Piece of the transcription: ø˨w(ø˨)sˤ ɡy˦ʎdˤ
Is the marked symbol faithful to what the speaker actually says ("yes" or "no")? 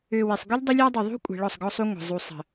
no